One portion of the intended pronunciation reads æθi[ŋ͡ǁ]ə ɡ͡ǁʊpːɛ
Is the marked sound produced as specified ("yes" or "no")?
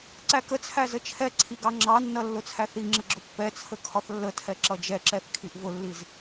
yes